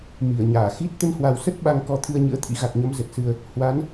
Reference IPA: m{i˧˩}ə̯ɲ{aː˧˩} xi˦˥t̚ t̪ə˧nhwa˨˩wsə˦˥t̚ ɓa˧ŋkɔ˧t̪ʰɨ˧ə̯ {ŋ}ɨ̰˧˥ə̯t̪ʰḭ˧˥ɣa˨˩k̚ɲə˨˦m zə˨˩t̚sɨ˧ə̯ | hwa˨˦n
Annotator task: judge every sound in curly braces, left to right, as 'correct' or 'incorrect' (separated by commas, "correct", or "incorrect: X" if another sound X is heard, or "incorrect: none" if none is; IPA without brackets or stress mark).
correct, correct, incorrect: ɲ